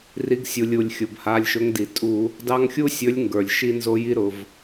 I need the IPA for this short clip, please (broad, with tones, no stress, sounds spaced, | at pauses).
r i˨˦ ɡ sʲ u˩ lʲ u˩ lʲ xʲ ʊ˩ b h a˩˧˩ lʲ ʃ ʊ˨˦ ŋ d i˩ tʼ u˧˩˧ | d ɑ˦ ŋ xʲ u˦ sʲ ɵ˨˦ lʲ ŋ ɡ ə˞˩ lʲ ʃ i˦ n z o˦ j i˦ ɾ ʊ˩ v